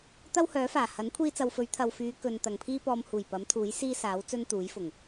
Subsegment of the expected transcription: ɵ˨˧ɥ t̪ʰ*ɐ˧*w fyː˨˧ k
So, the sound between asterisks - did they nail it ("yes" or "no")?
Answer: yes